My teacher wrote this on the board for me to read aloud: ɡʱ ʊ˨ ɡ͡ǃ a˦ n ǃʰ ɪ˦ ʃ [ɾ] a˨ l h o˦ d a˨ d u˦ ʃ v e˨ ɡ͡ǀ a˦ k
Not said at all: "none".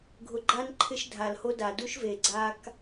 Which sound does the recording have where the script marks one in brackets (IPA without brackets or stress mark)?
dʱ